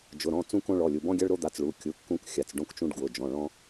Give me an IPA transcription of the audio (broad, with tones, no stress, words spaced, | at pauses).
d͡ʒʊ˩˧˩ɾɔ̃˩˧˩ t͡sũ˦kõ˦ɭɔ˩˧˩ lʲu˩˧˩ bɔ̃˦ɡʲa˦ɭɾo˦d̪a˩˧˩t͡s ɭu˩˧˩kʲu˩˧˩ kːũ˦kxʲa˩˧˩t͡sɖõ˦kt͡ʃũ˦ɖ ɡwʊ˩˧˩ d͡ʒɔ̃˩˧˩ɭɔ̃˦